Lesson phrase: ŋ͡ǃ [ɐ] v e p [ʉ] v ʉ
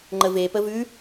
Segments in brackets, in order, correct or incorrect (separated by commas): incorrect, incorrect